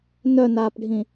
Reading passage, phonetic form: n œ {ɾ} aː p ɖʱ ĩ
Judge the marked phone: incorrect: n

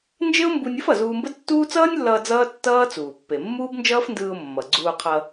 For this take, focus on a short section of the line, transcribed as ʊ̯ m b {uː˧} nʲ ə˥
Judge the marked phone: incorrect: u˧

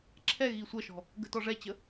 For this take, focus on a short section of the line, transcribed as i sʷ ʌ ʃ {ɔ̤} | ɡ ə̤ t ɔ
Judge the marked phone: correct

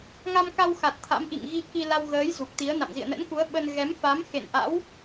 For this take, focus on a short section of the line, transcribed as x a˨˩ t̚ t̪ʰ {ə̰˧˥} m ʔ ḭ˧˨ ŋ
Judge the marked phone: incorrect: a̰˧˥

